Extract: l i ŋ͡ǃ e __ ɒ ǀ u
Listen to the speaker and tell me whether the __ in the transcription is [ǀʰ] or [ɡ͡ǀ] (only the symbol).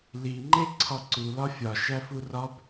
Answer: ǀʰ